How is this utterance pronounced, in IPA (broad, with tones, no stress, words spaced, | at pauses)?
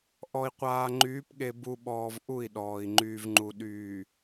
ʔɔ˨i̯qʷaː˨ŋ͡ǃyː˨˦pɠe˨ bu˨ ɓɔː˨v ʔu˦˨i̯ɗɔː˨i̯ ŋ͡ǃyː˨vŋ͡ǃu˨ ɗyː˨